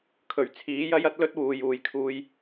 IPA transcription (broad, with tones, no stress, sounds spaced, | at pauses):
kʰ ɵ˨˩ ɥ t͡sʰ iː˨˥ j ɐ˥ j ɐ˥ t̚ l ɵ˥ t̚ w uː˨ j uː˨ j kʰ uː˧ j